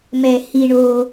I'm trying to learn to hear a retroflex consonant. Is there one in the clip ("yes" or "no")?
yes